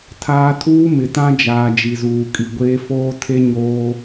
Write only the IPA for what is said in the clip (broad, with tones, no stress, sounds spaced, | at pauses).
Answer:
tʰ aː˦ tʰ uː˦ m ɪ˨ t ã˦ d͡ʒ aː˨ d͡ʒ i˨ z uː˨ kʼ i˨ ɡʷ eː˦ f oː˦ tʰ e˦ ɲ oː˦